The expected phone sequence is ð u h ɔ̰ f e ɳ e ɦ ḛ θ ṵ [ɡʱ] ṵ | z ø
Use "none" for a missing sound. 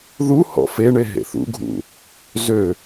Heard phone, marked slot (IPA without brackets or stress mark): ɡʱ